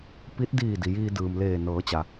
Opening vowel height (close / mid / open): close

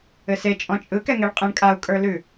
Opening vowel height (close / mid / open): mid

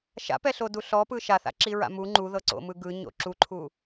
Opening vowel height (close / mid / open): open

